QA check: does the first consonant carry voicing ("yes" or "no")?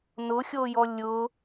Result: yes